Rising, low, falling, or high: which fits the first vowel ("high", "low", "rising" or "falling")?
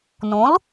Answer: rising